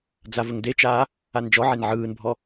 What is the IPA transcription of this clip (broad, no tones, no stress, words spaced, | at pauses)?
d͡zavəŋdet͡ʃaː | and͡ʒɔʕen ʕɯːnbʱɔ